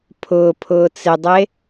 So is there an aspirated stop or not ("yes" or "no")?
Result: yes